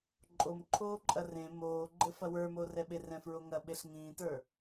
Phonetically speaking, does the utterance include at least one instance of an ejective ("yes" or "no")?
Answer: yes